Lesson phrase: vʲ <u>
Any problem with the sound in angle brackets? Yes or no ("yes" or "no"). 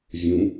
yes